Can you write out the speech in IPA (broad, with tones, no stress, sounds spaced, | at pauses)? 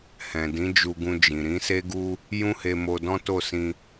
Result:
h ɛ̃˨ d ĩ˨˦ d͡ʒ u˧ ɡ ũ˧ d͡ʒ ĩ˨ ɾ ĩ˨˦ s e˦ ɡ u˦ | j ũ˦ h e˧ m o˧ d ɔ̃˦ t o˦˨ s ĩ˧